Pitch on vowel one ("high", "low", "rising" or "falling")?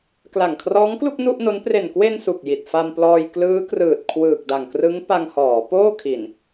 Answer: low